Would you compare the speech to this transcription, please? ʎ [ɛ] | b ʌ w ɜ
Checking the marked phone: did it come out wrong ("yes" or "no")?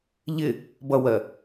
yes